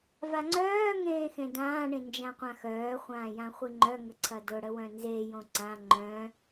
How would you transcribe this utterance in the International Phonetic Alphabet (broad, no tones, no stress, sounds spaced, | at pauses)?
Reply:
v a ŋ͡ǀ œː ŋ ẽː x ẽ d ãː ɳ ĩ n d͡ʒ ã qʷ ã x œː χʷ ãː j ã χʷ i ŋ͡ǃ œ ŋ ə ǀʰ ɐ d ʊ ɽ ə w œ̃ n z e j õ ǀ ã ŋ͡ǃ œ̃